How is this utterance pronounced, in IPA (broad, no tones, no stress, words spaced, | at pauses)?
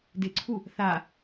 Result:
dɪǀʰu | θa